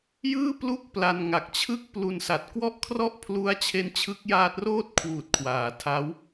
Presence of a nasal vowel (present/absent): absent